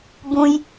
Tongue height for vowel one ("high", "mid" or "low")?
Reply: high